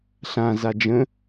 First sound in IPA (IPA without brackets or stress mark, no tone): ɬ